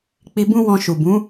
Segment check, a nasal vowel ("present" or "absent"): present